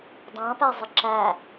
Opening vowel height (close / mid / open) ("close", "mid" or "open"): open